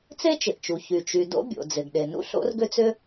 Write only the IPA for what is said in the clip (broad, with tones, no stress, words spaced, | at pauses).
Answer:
t͡se˥t͡ʃɪ˩ʔt͡ʃu˩ çy˩t͡ʃy˩ do̰˥bʲo̰˩ d͡zɪ˩ɡɗe˩nṵ˥ ɬo̰˥rɡʏ˥t͡sʏ˥